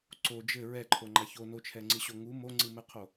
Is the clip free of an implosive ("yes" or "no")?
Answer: yes